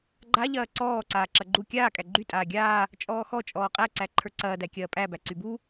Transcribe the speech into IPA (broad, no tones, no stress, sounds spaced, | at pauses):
ɡ͡ǃ a ʎ ɐː ǀ ɔː ǀ aː ǁ ɐ ɡ͡ǃ u kʲ aː kʼ æ ɡ͡ǃ y tʼ aː ɡʲ aː | t͡ʃʼ ɔː x ɔ t͡ʃʼ ɔː qʼ æ ǀ æ ǃʰ ə˞ ǀ ɐː d æ kʲ ɐː pʼ æ b æ ǀ y b u